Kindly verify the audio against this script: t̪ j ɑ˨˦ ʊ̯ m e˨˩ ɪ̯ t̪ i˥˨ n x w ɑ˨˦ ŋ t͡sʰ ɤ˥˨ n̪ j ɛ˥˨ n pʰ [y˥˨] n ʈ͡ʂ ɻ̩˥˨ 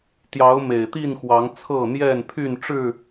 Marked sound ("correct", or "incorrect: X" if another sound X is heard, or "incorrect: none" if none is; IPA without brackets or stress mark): correct